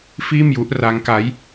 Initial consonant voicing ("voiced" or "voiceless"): voiceless